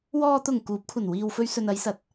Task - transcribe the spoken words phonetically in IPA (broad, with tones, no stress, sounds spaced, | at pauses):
w ɔː˨ t̪ ʊ˨˩ ŋ k uː˨˥ p̚ kʷʰ ɐ˨˩ n w iː˨ w f ɵ˧ ɥ s ɵ˨ n ɐ˨˧ j s ɐ˨ t̚